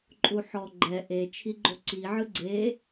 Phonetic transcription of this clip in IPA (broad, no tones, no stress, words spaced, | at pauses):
ǃʼuħɔ ɡ͡ǃɛ ʔe t͡ʃʰiɡ͡ǃoǀiʕɯ ɡ͡ǀe